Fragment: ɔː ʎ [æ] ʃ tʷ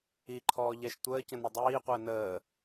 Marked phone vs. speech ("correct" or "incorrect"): incorrect